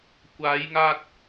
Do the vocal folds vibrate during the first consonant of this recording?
no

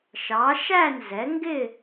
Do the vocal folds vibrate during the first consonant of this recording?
no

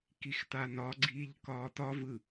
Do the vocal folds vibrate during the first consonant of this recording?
no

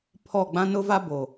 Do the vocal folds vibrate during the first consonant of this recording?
no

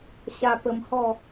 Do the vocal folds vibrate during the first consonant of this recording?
no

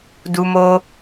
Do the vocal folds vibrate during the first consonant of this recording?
yes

